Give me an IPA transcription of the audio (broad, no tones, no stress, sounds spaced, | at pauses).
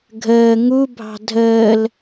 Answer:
ɡʱ əː ŋ u bʱ ɑ̤ dʱ əː l